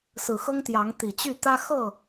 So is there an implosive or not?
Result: no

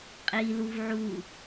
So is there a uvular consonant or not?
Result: yes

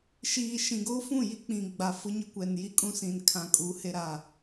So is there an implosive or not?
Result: no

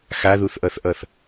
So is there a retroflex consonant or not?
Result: no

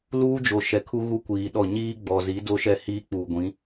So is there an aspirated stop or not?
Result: yes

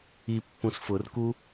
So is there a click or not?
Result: no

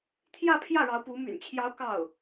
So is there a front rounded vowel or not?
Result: yes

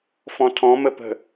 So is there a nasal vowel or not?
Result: yes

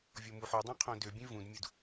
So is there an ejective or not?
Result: no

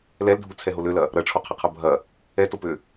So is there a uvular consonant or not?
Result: yes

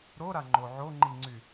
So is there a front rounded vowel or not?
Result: yes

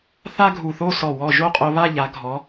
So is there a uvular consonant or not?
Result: yes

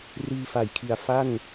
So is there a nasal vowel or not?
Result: no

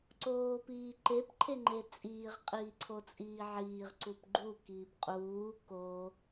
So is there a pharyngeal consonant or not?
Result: yes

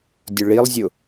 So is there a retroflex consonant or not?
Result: yes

